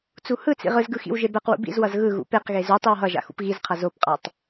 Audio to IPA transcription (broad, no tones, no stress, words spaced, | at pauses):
t͡suhɯt͡sḭ ʁɯzɡɯ xḭwʒebɛqwṵ bḭzwʌz ɣɯ ɣṵpeqɣe zu tˤiwɦʌʒa̰ xṵpɣizqʰʌ zopqʼatˤ